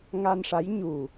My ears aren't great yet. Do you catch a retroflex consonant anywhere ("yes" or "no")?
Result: yes